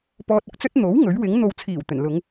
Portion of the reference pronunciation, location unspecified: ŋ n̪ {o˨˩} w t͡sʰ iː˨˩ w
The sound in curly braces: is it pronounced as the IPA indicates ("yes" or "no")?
no